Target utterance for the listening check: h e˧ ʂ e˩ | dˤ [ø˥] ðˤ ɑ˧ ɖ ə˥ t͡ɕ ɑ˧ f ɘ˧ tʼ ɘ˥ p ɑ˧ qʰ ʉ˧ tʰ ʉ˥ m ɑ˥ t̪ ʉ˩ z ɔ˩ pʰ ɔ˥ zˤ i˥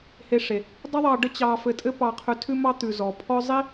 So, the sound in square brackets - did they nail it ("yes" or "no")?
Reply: no